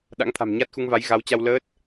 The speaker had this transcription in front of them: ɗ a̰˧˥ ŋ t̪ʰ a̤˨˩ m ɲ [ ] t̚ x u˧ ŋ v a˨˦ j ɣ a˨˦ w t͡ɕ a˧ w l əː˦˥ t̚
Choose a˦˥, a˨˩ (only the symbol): a˦˥